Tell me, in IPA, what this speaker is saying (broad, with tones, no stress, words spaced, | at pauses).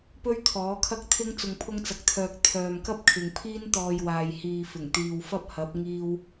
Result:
pɵ˥ɥt̪ʰɔː˨˥kʰɐ˥k̚ t̪ʰɪ˥ŋ t͡sʊ˧ŋpʰʊ˥ŋt͡sɐ˧k̚t̪ʰœː˧k̚ t̪ʰœː˨mkɐ˥p̚kʰɪ˨ŋ pʰiː˥nt̪ɔː˧jwaː˨j hiː˧fɪ˨˩ŋ t̪iː˨wfɐ˥p̚ hɐ˨˥p̚ŋiː˧w